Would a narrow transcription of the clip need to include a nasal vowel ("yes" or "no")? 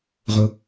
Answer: no